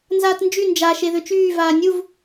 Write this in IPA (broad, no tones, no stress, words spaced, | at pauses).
nzaːtnd͡ʒy nd͡ʒa ʃeðøt͡ʃyː vaːnʲuv